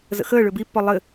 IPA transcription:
zə̰xəː ɭøbipːɔ lˠɘ

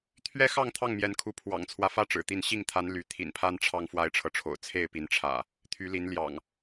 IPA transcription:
t̪ʰɥɛ˦xɑ˥˨ŋ t̪ʰɑ˥˨ŋmjɛ˨˦nkʰu˨˦ pʰwɑ̰˨˩ŋt͡sʰwä˦fä˦ ʈ͡ʂɻ̩˨˩t̪i˥˨n ɕi˥˨ŋt̪ʰa˨˦n ly˨˦ t̪ʰḭ˨˩npʰa˦n ʈ͡ʂʰɑ˦ŋfwa˦ɪ̯ʈ͡ʂʰɤ˨ʈ͡ʂʰo̰˨˩ʊ̯ t͡sʰe˥˨ɪ̯pi˨˦nʈ͡ʂʰä̰˨˩ | t̪ʰy˨˦li˨˦nljɑ̰˨˩ŋ

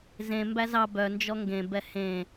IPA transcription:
zẽ mbæzɑ bœnd͡ʒɔ ŋɡẽbɛ hẽ

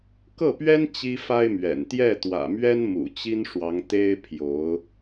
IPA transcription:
kɤ˥˩pɥɛ˥n t͡ɕi˥fa˥ɪ̯mɥɛ̰˨˩n t̪jɛ˥˩t̪wä̰˨˩mɥɛ˥n mṵ˨˩t͡ɕi˥nʂwɑ˧˥ŋ t̪e˥ɪ̯ pʰjo˧˥ʊ̯

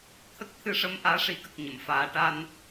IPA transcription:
t̪ʰə˦˥k̚ t̪ʰɨ˧ʂə˧˥m ʔaː˧˥ʂi˨˩˦kə˨˩k̚ ɲə˨˩˨mfaː˨˩˦ ʈa˧n

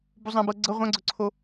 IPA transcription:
buzˤãbɤ ɡ͡ǀɤ ʁʷãɡ͡ǀɵǀʰo

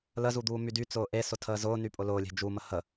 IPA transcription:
ləzud̪uː mydy t͡sʊːʔe sʊtʰəːzʊːny pʼʊlʊːlʲe̤ d͡ʒumə hə

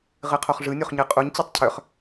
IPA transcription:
ʁɨqʰoχʐɯ nʲoχɲɨqʼuɲ t͡ɕɛtˤcʰœχ

